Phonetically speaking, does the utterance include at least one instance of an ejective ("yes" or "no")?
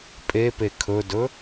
yes